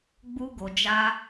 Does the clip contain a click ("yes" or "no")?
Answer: no